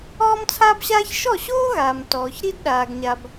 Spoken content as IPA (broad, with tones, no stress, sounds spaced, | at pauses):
ɔː˥ m t͡sʰ aː˥ b ɕ aː˥ ç ʃ ɔ˥˩ ɕ oː˥ ɣ aː˩ m t ɔː˩ ç ɾ i˥ d ɗ aː˩ ɡ ɲ a˩ b